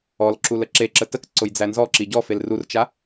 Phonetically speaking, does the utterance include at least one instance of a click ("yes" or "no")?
yes